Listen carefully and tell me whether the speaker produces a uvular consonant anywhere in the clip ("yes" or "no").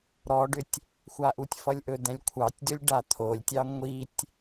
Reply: no